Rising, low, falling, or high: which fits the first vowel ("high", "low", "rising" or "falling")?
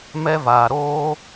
high